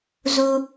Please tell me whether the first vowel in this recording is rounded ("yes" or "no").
yes